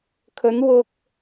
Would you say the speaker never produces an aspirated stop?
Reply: no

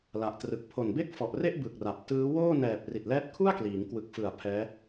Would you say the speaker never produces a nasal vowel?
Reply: yes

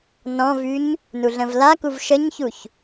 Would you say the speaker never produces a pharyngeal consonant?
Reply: yes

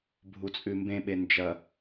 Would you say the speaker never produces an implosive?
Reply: no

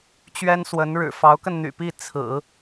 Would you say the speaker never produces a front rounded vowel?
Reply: no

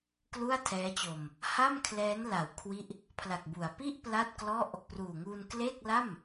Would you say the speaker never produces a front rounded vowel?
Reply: yes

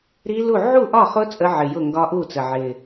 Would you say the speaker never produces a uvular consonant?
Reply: no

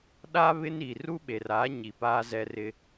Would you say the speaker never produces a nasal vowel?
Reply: yes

